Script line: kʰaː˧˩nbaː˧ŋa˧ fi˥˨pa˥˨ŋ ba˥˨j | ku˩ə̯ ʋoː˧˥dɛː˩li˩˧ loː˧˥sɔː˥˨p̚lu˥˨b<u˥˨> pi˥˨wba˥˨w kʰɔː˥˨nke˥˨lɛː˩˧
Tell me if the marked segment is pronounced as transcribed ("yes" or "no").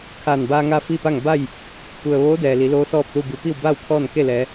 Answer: no